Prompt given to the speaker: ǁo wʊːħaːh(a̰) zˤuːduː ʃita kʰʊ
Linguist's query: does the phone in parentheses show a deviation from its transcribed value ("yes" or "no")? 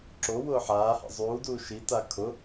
no